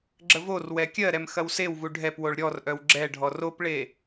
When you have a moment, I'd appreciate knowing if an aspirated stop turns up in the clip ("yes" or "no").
no